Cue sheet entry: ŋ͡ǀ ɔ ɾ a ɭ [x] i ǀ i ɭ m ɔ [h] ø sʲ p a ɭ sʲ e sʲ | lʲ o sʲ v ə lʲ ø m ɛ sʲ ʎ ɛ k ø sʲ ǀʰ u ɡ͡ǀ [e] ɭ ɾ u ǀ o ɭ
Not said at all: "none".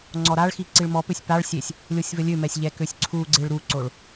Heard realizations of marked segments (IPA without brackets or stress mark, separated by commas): x, p, e